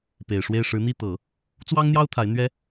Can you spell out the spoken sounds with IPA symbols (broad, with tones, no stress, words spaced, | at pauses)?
pe˨˩ɪ̯ʂwe˥˩ɪ̯ ʂɻ̩˧˥n̪i˥˩t̪ɤ˨˩˦ | t͡swɑ˥ŋn̪jɑ˥ʊ̯ t̪ʰa˧˥ɪ̯ n̪ɥɛ˥